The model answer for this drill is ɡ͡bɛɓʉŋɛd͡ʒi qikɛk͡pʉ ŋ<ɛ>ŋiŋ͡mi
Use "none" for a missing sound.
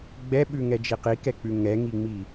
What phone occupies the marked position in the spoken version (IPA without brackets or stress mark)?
ɛ